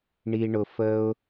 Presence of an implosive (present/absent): absent